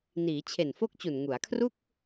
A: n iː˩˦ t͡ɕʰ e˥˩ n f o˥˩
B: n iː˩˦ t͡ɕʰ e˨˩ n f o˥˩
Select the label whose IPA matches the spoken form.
B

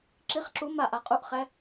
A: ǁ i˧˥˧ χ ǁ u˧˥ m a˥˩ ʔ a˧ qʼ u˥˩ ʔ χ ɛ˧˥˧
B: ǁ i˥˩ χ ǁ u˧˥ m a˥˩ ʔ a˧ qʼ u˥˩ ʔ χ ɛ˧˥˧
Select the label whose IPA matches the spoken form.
A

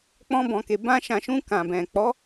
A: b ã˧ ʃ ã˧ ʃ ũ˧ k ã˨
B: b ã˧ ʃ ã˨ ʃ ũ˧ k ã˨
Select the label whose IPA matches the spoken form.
B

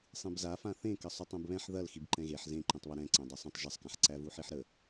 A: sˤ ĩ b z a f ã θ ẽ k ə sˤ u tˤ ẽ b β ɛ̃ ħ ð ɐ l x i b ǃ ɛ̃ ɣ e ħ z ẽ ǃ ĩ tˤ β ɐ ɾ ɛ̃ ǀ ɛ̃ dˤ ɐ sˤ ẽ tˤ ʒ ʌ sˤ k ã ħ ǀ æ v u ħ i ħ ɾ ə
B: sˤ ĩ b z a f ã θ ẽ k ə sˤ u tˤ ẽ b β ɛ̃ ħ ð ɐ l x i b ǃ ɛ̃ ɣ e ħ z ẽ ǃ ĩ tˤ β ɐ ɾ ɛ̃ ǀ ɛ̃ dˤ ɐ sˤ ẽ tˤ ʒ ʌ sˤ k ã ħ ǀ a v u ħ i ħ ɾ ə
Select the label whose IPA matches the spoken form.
A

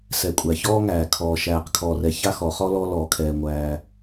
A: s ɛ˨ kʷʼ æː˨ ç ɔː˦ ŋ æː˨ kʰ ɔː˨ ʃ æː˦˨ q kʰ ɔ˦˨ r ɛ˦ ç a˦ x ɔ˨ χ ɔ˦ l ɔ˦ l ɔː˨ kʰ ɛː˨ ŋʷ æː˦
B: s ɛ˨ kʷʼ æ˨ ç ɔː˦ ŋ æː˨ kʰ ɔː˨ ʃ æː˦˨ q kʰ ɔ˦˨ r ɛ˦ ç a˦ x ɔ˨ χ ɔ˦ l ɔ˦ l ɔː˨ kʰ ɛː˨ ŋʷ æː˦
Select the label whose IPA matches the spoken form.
B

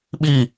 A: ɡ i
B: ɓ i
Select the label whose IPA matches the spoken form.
B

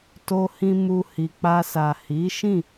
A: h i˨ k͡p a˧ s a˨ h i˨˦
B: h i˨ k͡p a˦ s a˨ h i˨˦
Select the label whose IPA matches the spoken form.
A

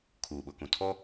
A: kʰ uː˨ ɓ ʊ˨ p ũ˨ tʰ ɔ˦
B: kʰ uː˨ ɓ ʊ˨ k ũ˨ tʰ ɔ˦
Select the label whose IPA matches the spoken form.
B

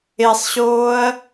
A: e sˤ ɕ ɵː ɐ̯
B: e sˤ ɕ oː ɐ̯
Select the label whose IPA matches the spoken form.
B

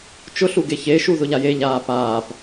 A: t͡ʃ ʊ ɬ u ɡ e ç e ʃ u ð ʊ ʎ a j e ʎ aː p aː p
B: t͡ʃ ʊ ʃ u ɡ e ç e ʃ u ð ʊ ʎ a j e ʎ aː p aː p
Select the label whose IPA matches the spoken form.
A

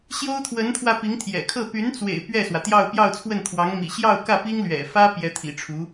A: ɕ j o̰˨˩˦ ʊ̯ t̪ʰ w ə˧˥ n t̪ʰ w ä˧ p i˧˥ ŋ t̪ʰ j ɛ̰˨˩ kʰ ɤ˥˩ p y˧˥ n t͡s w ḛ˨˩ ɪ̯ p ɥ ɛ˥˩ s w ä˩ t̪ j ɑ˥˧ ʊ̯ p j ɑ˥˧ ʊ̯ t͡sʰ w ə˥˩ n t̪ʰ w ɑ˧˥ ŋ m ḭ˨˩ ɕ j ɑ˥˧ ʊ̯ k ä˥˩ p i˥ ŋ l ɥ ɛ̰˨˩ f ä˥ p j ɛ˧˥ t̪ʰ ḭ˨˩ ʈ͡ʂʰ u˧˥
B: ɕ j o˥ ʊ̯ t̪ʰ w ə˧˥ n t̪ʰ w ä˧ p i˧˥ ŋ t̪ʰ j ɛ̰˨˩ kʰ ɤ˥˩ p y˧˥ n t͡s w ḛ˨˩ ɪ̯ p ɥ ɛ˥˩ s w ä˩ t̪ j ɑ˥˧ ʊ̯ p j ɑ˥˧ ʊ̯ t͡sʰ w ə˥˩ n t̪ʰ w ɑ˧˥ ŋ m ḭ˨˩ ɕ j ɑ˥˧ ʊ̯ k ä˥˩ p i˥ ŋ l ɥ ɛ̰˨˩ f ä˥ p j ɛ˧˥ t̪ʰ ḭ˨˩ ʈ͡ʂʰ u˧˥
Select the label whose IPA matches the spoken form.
B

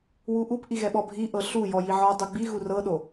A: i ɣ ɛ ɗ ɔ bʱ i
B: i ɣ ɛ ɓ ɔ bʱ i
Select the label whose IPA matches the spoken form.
B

